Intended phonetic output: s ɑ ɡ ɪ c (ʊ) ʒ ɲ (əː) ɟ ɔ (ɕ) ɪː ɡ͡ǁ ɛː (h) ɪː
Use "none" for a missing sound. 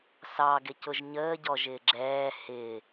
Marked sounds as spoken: ʊ, əː, ʒ, h

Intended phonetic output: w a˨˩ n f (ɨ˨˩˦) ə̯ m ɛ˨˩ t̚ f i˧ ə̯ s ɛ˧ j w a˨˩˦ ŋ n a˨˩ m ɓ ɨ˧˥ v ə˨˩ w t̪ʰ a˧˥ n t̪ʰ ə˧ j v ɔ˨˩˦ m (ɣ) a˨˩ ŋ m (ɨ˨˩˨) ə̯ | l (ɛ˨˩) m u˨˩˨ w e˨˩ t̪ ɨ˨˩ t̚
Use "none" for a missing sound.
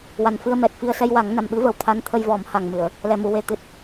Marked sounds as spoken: ɨ˧, h, ɨ˨˩˨, ɛ˨˩

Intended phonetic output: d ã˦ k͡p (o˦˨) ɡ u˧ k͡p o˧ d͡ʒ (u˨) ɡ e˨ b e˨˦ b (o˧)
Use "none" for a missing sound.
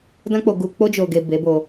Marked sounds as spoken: o˧, o˨, o˧

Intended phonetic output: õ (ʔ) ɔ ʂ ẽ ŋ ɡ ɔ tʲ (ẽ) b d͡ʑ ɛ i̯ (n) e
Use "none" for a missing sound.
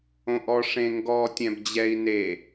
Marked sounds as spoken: ʔ, ɛ̃, n

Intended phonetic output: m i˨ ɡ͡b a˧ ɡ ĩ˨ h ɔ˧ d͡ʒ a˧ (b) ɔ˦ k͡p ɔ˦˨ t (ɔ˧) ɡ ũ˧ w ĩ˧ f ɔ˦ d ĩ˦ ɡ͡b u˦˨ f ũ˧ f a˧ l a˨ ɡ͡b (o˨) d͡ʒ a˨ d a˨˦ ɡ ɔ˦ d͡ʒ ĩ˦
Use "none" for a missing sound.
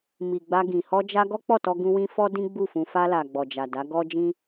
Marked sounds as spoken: ɡ, ɔ˧, ɔ˨

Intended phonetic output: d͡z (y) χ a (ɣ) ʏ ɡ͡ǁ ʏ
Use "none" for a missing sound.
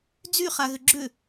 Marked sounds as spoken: y, ɣ

